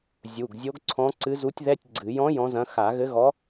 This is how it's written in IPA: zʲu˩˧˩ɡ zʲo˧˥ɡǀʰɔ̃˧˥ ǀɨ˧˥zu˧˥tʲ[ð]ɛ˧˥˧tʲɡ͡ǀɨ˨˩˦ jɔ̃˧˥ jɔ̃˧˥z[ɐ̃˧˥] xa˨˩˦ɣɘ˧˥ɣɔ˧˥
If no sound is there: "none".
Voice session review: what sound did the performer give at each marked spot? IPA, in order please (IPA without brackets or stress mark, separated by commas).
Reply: ð, ɐ̃˧˥